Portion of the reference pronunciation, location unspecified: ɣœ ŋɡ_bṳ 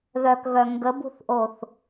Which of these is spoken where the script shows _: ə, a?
ə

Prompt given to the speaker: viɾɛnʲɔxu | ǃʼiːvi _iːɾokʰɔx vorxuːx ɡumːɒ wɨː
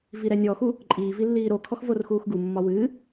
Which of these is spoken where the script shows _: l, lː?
lː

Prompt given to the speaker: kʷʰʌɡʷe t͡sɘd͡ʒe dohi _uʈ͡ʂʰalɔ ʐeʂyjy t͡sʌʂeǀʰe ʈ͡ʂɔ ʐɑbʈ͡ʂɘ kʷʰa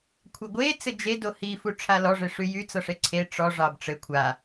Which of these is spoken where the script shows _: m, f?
f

